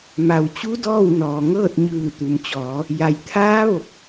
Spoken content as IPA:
m a˩ w t͡ɕ u˧˥ d ɔː˥˨ w n ɔː˩ ŋ ɤː˥˨ t̚ ɲ ɯː˧˩ t̪ u˩ m t͡ɕ ɔː˩˧ | j a˩ j t̪ʰ aː˧˥ ʋ o˧˩ k̚

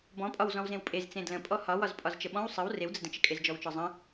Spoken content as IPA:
b ɔ̃ pʼ ɒ w z ɔ̃ w z ẽ w pʼ e z t͡s ẽ d l ə̃ pʼ ɔ h ɒ w ɒ z pʼ ɒ z t͡ʃ ə ɓ ɔ̃ w sˤ ə w r e w d͡z ə d ə̃ t͡ʃ ə kʼ e z d͡ʒ ɔ w t͡ʃ ɒ zˤ ə̃

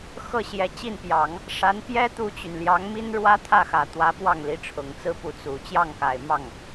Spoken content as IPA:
x ɤ˥˩ ɕ j ɛ˧˥ t͡ɕ i˥˩ n p j ɑ˨˩˦ ŋ | ʂ a˧˥ n p j ɛ˥ t̪ u˥ t͡ɕ y˨ n l j ɑ˧˥ ŋ m i˥ n ɻ w ä˥ t̪ʰ ä˥˩ x ä˨˩ t̪ w ä˧˥ p w ɑ˥˩ ŋ l i˧˥ ʈ͡ʂʰ ʊ˨˩ ŋ t͡s ɹ̩˥ p u˧˥ t͡s u˨˩ t͡ɕ j ɑ˥˩ ŋ k a˨˩ ɪ̯ m ɑ˥˩ ŋ

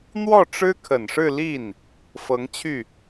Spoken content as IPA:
n̪ w ɔ˥˩ ʈ͡ʂ ɻ̩˥ kʰ ə˨˩ n ʂ ɻ̩˥˧ l i˥˩ n | f ɤ˧˥ ŋ t͡ɕʰ y˥˩

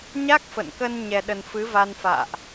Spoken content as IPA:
ɲ a˦˥ k̚ f ə̰˧˨ n k ə˧ n ɲ ɛ˧ ɗ ə˧ n f ɨ˨˦ v a˧ n f a̰ː˧˨ ʔ

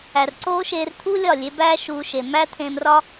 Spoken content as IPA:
æ˨ r ǀ oː˦ ʃ eː˧ r t̪ʰ u˦ lʲ ɒ˦˨ lʲ e˨˦ b æː˦ ʃ uː˧ ʃ e˨ m æ˦ t̪ʰ ẽː˧ m r ɒ˦

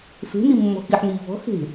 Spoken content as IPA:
f e̤ n i mː ɔ̤ x i ħ n iː v ɔ̤ x e̤

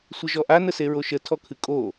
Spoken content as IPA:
sʷ ə ʒ ɔ ʔ a n ə s e ɹ o ʃ ə tʰ ɔ kʰ ɨ kʼ o

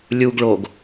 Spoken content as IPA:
lʲ u ɡ ɭ o ɡ

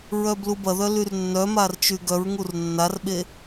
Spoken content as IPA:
ɹ œ b l u b ɐ ð œ l y r nː œ m a r t͡ʃ y ɡ œ ɹ ŋ u r nː a r ɓ e

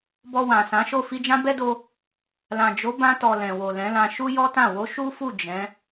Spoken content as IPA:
b ɔ˧ w ã˨ s ã˨˦ ʃ o˦˨ f i˧ d͡ʒ ã˦ b ɛ˦ d o˧ | l ã˨ d͡ʒ o˨˦ b ã˧ t ɔ˨ l ɛ̃˨ w o˨ l ɛ̃˨˦ l ã˧ ʃ u˦ j ɔ˦ t ã˦˨ w o˨˦ ʃ u˦ f u˦˨ d͡ʒ ɛ̃˨˦

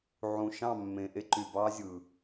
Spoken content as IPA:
ʕ ũ˨ ʃ ɑ̃˦˨ mː ẽ˨ ʔ e˦ ǃ y˨ b ɑː˦ zʲ ɯ˨

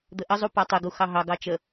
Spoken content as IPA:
d̪ ə ʔ ə zˤ u p a tˤ ɪ ɡ u x ɑ ɦ ɑ ɡ ɑ t͡ʃ ə

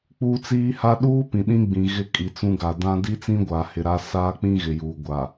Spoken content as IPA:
k͡p uː˦ t͡s iː˦ h a˦ ɗ uː˦ p ĩ˨ ɗ ĩ˦ ɡ͡b ĩ˨ ɣ ɪ˦ kʼ i˨ t͡s ũ˦ ɡ a˨ d ã˦ d i˦ t͡s ĩ˦ ɡʷ aː˨ h ɪ˨ ɾ a˦ s aː˦ k͡p ĩ˦ ɣ ɪ˨ j uː˨ ɡʷ a˨

